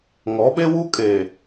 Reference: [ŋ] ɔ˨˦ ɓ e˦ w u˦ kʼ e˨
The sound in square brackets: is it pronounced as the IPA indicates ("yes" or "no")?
yes